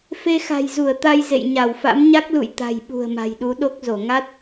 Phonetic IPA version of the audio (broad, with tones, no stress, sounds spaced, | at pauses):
f e˧ x a̤˨˩ j z u˧˩ ə̯ t̪ a˧ j z ḛ˧˨ j ɲ a˧˩ w f a̰˧˥ m ɲ a˦˥ k̚ l ṵ˧˨ j t̪ a̤˨˩ j ɓ ṳ˨˩ ə̯ m a̤˨˩ j ɗ u˨˦ ɗ o˦˥ k̚ z o˧˩ ŋ a˦˥ t̚